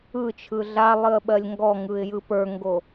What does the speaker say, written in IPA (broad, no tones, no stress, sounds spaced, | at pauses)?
ɯ t͡ʃʰ ɯ ɮ a lˠ ɨ ə̯ ɓ ɜ lʲ ŋ ɡ ɔ ŋ ɯ ɪ̯ j ɯ p ə˞ ŋ ɡ o